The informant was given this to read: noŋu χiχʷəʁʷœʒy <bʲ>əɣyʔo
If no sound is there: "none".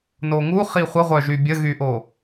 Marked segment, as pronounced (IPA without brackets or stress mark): bʲ